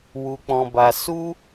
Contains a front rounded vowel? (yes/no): no